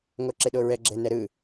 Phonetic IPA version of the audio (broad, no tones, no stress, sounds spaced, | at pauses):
ŋ o ǁ e ɗ o ɹ ɛ ɡ͡ǁ ɛ n ɛ ɾ ɯ